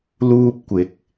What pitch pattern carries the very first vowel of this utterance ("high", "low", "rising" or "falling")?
high